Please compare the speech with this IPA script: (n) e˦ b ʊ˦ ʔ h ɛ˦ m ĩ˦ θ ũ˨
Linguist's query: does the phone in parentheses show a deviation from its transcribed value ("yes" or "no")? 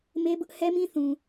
yes